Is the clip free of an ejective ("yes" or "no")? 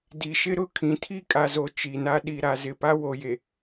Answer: no